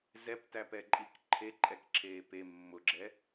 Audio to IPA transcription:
z ɛ p t æ p ɛ ǃʼ i k ǃʰ e ǃʼ ɛ k ǁʰ eː p e mː ʊ ɡ͡ǁ ɛ

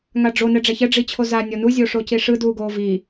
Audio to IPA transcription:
ŋ a ɖ͡ʐ o n ɛ ɖ͡ʐ ɛ ç ɛ ɖ͡ʐ i t͡ɕʰ o z a nʲ ɔ n u zʲ o ʂ o c i ʂ ɯ d uː ɡ oː v i

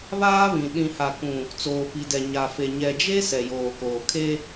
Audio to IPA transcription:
β aː˦ β ĩ˨ ɗ ĩ˨ h a˨ k ũ˨ | t͡s oː˨ p i˨ d ɛ˨ ɲ a˨ f e˨ ɲ ɛ˨ d͡ʒ e˦ s ɛ˨ j oː˨ k oː˨ kʰ e˦

